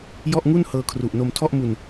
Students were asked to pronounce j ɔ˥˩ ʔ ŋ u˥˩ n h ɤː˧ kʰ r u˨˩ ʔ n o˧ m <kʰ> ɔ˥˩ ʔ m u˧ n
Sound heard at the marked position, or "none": tʰ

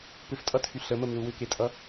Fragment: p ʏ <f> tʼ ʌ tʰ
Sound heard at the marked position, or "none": f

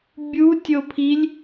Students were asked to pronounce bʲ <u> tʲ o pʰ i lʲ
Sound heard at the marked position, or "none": u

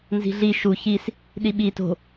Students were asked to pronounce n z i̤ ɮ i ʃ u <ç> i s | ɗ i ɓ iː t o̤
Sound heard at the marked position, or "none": ç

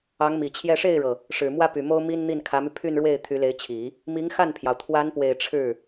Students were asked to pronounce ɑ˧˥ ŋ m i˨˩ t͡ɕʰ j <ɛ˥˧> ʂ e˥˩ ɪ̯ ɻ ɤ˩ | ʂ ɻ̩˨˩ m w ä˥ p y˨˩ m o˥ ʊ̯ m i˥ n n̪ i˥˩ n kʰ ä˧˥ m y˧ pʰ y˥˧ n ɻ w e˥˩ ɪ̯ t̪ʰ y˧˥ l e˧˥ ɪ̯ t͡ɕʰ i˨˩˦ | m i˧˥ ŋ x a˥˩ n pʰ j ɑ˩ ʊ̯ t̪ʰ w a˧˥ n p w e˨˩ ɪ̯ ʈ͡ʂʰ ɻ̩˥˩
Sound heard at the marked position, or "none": ɛ˥˧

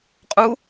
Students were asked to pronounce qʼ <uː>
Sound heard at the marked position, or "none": u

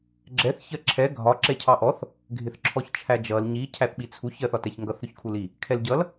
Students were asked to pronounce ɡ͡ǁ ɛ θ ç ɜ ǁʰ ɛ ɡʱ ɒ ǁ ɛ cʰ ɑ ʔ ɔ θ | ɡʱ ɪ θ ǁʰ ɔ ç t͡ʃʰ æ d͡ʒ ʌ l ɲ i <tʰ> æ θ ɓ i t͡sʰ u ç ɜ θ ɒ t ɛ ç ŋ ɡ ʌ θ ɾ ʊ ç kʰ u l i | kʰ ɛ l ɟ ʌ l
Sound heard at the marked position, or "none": cʰ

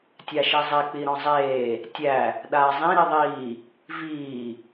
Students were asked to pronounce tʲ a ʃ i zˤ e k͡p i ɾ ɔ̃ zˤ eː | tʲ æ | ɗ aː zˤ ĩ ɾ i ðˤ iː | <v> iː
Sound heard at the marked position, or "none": v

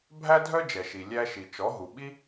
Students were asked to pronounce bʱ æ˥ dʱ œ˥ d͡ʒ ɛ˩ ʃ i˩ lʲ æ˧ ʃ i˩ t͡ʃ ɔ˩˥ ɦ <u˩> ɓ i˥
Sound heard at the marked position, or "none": u˩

